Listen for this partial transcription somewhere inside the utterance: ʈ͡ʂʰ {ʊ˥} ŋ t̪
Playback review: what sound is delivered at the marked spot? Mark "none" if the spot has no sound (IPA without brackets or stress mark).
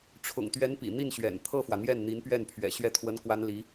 ʊ̰˨˩